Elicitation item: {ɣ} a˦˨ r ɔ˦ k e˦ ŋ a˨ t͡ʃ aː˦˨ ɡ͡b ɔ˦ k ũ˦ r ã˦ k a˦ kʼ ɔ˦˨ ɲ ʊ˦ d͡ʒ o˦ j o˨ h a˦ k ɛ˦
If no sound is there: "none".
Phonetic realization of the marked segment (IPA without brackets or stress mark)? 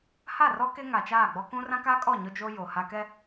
h